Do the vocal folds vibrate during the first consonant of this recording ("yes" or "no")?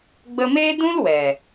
yes